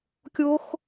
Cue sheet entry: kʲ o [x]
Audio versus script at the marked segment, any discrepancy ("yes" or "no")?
no